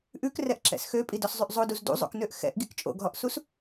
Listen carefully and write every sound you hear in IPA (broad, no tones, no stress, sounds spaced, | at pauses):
ʔ ʉ k r ɛ ʔ ǁ ɛ̰ s x ø pʼ i d ɔ s zˤ y ʔ zˤ o d u z d ṵ zˤ o̰ k n ø ʔ x ɛ̰ ʔ ɡ i k t͡ʃʼ o̰ ɡ ɦ ɔ ʔ s u s